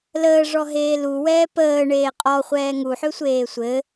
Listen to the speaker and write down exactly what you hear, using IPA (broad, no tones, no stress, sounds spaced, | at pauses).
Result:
l əː ʐ ɔ ɦ eː l u w ɛː p əː ɳ eː qʼ ɔ χʷ ɛː ŋ u ħ ø sʷ eː sʷ ɘ